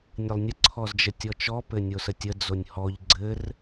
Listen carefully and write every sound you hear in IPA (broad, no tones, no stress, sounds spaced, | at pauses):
nʲ ə lˠ nʲ ə ǀʰ ɔ z d͡ʒ ə tʲ ɔ t͡ʃ ɔ p ɘ nʲ o s ə tʲ ə d͡z o nʲ h ɔ ʎ ɡ͡ǀ ɘ r